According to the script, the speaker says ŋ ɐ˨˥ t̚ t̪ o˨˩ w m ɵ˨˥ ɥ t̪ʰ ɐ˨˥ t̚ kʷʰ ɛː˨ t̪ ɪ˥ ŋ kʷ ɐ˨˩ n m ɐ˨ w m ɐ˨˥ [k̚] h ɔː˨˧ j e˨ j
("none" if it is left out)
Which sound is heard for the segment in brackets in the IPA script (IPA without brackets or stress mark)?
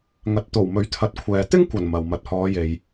t̚